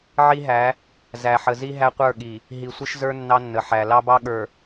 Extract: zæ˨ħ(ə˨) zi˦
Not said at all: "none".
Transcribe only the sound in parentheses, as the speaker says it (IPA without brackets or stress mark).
ə˨